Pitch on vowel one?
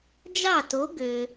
falling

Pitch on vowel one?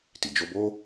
low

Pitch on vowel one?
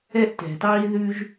high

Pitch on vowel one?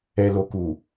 low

